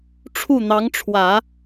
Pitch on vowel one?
falling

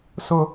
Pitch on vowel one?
high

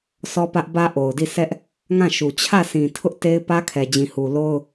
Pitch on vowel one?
high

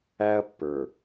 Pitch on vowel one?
high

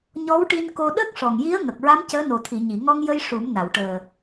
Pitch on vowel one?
rising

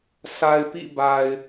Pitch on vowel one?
low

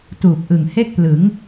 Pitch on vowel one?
low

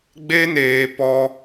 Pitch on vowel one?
high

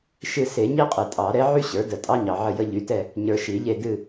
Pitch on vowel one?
falling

